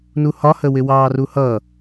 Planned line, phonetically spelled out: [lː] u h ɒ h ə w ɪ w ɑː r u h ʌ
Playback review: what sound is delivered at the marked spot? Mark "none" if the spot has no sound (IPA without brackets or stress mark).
n